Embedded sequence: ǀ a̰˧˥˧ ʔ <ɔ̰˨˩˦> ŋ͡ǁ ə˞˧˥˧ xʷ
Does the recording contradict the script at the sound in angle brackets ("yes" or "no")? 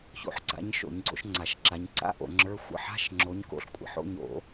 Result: yes